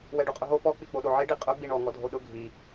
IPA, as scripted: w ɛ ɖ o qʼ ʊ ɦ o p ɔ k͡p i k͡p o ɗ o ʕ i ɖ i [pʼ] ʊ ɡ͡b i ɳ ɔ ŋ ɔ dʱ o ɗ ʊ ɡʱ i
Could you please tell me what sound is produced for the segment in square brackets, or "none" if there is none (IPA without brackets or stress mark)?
qʼ